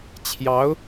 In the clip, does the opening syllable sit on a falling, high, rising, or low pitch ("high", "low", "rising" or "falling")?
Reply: rising